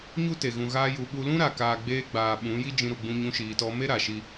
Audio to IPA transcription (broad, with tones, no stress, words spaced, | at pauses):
ɲu˦te˨ ɣũ˨ɣaː˧ju˨ɓu˧ lũ˦ɾa˨kaː˨ ɡ͡beː˧ɡ͡baː˨ ɓũ˨˦ ji˧ d͡ʒĩ˧ ɾu˨ɡ͡bũ˧ɲũ˧ ʃiː˨tɔ˧ me˦ ɾa˨ʃi˧